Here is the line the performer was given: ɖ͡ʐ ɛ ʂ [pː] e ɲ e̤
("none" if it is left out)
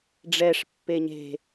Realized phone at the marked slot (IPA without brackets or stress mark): pː